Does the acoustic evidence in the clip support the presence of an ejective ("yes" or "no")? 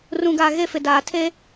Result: no